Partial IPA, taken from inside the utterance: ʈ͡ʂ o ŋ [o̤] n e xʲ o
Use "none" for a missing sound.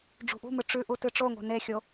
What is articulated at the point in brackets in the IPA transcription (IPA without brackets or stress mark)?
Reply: o̤